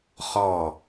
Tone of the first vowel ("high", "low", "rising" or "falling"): falling